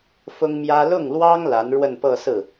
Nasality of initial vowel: oral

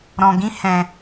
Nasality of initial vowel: nasal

